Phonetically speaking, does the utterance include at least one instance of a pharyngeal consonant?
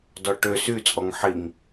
yes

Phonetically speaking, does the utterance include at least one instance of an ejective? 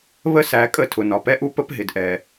yes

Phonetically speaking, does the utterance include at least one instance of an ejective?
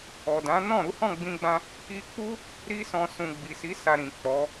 no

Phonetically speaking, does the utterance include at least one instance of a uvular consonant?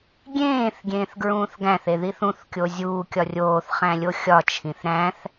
yes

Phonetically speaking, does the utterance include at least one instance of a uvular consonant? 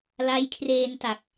no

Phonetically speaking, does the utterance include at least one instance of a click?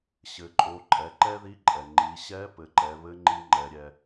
yes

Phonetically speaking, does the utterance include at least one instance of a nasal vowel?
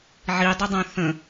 yes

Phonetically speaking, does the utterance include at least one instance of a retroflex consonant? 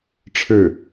yes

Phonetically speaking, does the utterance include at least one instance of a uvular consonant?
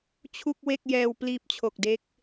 no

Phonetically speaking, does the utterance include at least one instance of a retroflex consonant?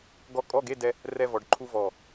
yes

